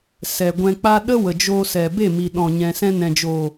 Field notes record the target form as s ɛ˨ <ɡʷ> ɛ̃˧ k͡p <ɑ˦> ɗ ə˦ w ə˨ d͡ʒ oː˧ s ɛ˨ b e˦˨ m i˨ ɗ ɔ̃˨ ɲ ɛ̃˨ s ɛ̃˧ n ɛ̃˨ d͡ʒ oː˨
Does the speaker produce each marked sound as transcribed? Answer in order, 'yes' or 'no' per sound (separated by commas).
yes, no